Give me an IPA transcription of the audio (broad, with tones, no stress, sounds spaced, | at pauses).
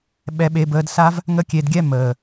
ɓ ɛ˧ ɓ e˧ b əː˧ d s a˦ v | ŋ ə˦ kʲ e˧ d ɡʲ ɛ˦ m əː˨